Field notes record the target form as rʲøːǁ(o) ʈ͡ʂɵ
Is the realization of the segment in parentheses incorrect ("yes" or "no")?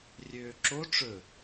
no